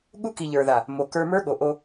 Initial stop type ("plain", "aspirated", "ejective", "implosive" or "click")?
implosive